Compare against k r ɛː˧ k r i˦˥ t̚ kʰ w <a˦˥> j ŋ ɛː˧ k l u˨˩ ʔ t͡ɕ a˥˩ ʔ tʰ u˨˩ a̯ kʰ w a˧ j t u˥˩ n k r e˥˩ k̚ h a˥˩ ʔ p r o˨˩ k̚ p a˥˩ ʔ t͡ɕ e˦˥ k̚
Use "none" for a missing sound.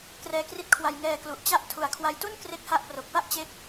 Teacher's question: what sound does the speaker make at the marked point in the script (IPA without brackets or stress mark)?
a˧